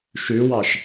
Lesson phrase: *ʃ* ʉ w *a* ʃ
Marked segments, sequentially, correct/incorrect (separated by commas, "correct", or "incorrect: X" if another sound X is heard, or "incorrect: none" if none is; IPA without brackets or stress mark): correct, incorrect: ɑ